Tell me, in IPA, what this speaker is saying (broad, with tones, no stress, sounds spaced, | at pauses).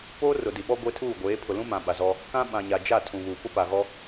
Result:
p oː˦ r ʊ˨ d i˨ ɓ ɔ˦ ɡʷ e˦ tʰ uː˦˨ ɡʷ eː˨˦ pʰ ʊ˨ l ũ˦ m ã˨ ɓ a˨ z ɔ˦ | k ã˦ ɓ ã˨ ɲ a˨ d͡ʒ a˦˨ tʰ ũ˨ β uː˨ p ʊ˦ p a˨ ɣ ɔ˦